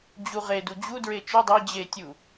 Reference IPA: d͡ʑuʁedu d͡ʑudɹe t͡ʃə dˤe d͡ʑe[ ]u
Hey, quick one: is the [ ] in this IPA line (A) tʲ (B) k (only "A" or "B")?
A